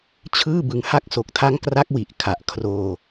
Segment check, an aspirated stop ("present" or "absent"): present